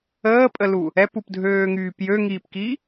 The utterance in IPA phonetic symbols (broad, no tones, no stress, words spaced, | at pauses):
əːpʼəlu | ɛpupdʱøːŋyːp jøŋiːpki